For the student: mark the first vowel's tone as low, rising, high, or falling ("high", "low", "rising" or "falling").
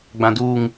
high